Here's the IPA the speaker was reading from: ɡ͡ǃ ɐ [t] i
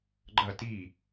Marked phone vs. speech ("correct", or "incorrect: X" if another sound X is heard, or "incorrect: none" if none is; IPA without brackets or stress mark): correct